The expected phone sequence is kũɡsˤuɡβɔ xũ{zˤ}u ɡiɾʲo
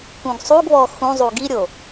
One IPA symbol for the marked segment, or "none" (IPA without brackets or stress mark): zˤ